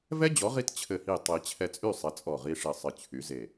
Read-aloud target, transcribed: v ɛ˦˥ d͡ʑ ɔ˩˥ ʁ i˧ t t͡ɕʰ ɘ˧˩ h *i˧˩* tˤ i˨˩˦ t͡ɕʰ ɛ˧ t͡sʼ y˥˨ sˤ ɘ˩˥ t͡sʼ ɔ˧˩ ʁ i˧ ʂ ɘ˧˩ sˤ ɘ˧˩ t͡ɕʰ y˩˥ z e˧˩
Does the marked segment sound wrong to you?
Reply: no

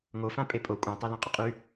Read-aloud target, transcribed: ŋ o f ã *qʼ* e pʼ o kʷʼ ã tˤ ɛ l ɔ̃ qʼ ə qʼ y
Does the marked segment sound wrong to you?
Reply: yes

